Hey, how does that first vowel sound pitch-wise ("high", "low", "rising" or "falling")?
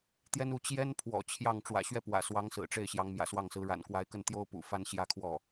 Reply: high